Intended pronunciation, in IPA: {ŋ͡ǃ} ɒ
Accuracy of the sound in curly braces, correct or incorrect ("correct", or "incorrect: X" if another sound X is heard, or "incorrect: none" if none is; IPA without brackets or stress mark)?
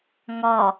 incorrect: ŋ